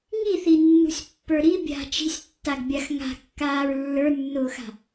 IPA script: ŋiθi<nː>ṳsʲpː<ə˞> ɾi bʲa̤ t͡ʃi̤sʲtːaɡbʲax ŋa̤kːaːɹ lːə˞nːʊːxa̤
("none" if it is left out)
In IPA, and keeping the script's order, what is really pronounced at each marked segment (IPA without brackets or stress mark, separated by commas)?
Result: nː, ə˞